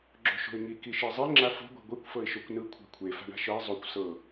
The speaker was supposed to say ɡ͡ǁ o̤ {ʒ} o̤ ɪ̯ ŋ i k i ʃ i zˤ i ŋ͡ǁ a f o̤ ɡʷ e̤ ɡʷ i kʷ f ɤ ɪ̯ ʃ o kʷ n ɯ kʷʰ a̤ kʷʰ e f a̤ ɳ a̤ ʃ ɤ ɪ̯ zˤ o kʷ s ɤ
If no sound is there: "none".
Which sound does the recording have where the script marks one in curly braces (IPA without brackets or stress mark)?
ʃ